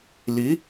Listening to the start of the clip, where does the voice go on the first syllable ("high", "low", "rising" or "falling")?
rising